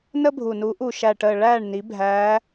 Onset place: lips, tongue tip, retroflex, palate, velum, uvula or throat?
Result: tongue tip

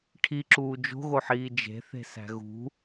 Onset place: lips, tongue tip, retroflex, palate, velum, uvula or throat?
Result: retroflex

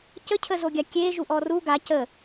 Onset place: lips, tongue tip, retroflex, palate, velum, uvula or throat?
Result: palate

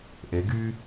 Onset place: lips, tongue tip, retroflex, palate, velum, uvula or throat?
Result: throat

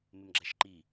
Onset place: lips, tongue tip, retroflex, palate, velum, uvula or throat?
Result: lips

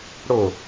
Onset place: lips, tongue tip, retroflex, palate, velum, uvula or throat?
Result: retroflex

